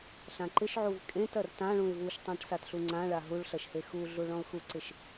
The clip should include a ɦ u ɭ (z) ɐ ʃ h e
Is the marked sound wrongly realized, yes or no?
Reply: yes